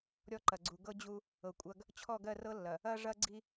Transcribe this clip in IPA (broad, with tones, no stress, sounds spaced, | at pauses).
ɾʲ ɔ˦ ǃ ɐ˨ ɡ͡ǀ u˨ ɡ ɤ˦ d͡ʑ u˦ | ɤ˨ kʷʼ ɐ˦ ɡ | t͡ɕʰ ɔ˦˨ ɡ ɜ˦˨ r ɤ˦ lː ɐ˨ | ɐ˦ ʐ ɐ˦ ɡ͡ǀ i˦